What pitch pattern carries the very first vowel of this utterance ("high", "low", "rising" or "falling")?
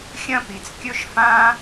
high